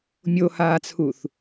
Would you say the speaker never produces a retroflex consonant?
yes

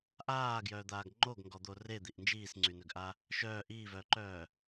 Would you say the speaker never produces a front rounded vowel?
no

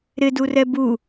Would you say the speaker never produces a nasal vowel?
yes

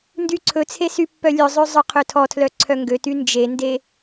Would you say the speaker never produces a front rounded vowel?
no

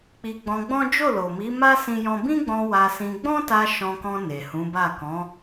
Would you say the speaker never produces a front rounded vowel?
yes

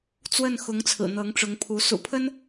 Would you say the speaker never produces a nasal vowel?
yes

